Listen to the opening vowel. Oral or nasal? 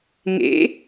oral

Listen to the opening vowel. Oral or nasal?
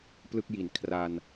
oral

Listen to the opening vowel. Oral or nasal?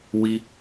oral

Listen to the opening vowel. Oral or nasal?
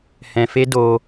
nasal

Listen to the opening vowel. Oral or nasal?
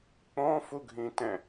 nasal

